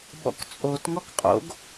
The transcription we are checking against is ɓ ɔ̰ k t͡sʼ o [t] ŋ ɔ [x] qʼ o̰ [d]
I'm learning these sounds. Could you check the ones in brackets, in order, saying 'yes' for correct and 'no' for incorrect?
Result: yes, no, no

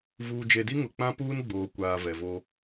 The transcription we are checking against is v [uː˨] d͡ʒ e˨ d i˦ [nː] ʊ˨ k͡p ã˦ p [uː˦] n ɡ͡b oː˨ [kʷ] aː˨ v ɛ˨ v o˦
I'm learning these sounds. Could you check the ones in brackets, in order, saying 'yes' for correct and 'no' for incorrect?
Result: yes, no, yes, yes

